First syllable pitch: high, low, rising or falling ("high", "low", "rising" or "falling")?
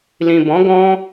low